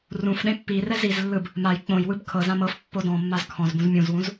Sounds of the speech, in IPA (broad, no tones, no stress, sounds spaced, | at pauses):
r ũ f ɗ ẽ pː i r ɛ z i z lː ɯ b | m a j k͡p õ j w ɯ b kʰ ɤ z ã m ɤ f pː o d ɔ̃ mː a z kʰ ɔ̃ z b ũ z mʲ ũ z w ũ z